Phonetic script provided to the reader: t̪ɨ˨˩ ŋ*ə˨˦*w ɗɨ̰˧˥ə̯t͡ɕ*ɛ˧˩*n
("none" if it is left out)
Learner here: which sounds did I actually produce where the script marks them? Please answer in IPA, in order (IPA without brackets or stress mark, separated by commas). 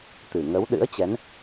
ə˨˦, ɛ˨˦